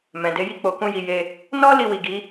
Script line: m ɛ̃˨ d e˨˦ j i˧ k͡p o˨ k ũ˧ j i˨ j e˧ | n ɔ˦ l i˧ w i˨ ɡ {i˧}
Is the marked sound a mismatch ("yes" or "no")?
yes